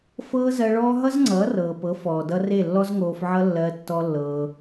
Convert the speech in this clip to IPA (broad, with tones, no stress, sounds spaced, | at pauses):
f ɤː˦ z ɜ˧ ɭ ɔː˦ ɦ ʌ˦ z ŋ͡ǀ ʌː˨˦ r ɤː˨ p ɤ˨˦ f ɔː˨ d ʌ˧ r e˦˨ lː ɔ˦ z ŋ oː˧ f ʕ ʌ˦ lː ɜ˧ tː ɔ˦ lː ɤː˧